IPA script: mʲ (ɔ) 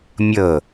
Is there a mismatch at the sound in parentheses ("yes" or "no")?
yes